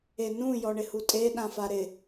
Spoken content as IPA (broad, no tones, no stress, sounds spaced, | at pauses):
e n ũ j ɔ ɳ ɪ h u tʼ e ɗ ã f a ɾ ɪ